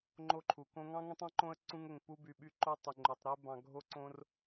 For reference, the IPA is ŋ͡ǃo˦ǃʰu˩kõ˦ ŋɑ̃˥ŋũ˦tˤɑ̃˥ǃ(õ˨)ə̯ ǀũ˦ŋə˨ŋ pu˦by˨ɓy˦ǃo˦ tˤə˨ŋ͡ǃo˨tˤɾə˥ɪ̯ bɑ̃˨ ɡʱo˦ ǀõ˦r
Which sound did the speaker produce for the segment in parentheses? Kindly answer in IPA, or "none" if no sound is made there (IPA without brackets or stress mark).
õ˦